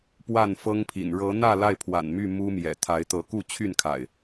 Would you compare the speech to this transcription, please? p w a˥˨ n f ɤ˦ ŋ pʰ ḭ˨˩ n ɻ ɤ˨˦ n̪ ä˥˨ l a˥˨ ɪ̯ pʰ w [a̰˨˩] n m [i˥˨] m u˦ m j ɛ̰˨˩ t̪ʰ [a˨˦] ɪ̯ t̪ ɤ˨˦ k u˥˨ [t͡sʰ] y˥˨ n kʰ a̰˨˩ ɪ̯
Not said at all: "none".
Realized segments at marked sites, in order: a̰˨˩, y˥˨, a˨˦, t͡ɕʰ

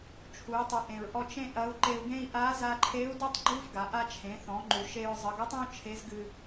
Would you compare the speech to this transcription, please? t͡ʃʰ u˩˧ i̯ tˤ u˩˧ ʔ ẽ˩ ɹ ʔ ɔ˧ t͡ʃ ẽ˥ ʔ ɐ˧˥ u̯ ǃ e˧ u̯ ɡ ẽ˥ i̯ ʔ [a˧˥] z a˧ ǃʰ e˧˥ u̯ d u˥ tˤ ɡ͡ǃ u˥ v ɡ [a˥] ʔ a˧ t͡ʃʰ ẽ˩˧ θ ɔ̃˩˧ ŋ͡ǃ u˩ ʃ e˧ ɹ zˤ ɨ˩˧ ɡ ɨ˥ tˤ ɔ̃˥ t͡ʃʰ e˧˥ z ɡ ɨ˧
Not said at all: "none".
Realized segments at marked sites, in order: a˧˥, a˩˧

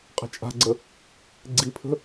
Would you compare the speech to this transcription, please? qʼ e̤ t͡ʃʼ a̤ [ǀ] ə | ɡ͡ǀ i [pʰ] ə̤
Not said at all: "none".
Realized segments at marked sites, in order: ɡ͡ǀ, pʰ

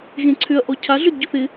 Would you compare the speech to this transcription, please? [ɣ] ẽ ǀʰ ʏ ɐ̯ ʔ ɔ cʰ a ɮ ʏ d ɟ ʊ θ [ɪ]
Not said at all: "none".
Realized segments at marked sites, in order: ɣ, ɪ

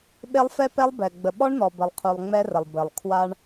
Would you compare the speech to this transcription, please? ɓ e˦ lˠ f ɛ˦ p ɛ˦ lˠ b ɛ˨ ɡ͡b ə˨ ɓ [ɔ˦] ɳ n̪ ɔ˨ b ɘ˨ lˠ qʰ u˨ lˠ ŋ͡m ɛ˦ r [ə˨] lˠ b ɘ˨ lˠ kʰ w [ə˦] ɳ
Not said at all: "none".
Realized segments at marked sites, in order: ɔ˦, ə˨, a˦

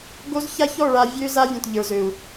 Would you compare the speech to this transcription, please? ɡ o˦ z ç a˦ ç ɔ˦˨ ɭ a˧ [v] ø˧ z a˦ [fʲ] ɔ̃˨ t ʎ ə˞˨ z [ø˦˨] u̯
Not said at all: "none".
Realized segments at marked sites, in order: vʲ, vʲ, ø˨

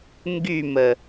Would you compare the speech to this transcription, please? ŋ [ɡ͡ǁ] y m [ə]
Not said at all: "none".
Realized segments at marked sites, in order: ɡ, ə

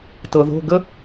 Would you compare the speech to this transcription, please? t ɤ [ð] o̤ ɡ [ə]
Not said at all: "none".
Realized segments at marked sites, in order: ð, ə

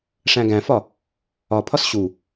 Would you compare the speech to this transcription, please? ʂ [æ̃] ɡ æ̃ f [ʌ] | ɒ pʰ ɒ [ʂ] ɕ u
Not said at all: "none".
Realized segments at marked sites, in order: æ̃, ɒ, s

